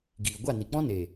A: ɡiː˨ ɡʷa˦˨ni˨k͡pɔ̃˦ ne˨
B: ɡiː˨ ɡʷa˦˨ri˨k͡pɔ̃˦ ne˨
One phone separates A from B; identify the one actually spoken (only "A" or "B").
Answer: A